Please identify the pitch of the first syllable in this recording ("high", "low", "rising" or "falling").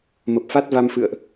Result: low